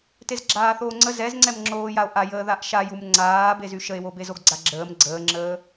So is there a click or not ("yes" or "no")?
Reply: yes